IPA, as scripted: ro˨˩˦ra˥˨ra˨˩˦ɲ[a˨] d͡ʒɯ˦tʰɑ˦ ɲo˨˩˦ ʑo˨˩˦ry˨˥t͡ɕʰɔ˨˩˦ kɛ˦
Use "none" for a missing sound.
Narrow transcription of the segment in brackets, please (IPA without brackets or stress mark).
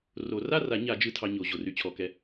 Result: a˨˩˦